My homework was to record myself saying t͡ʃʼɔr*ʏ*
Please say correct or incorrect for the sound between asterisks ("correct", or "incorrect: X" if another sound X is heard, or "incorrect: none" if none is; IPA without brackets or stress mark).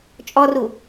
incorrect: u